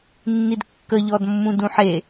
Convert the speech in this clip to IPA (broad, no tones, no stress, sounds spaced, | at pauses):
nː i d kː ə ʎ ɔ d mː ũ d ũ ħ e